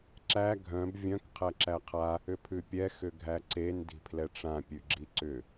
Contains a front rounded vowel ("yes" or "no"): yes